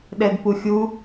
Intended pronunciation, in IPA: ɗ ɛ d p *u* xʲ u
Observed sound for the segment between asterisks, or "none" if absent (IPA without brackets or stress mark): u